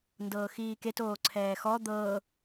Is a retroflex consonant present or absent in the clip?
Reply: absent